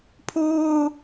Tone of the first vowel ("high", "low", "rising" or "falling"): high